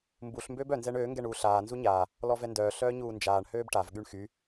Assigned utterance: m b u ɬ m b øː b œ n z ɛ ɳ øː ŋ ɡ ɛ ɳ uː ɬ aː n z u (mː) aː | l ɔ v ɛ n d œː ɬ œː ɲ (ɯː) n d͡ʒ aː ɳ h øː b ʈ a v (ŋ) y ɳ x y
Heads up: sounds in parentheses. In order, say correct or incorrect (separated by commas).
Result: incorrect, incorrect, incorrect